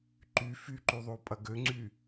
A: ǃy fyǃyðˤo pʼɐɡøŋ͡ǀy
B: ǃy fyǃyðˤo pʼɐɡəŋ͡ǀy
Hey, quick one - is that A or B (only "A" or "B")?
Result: A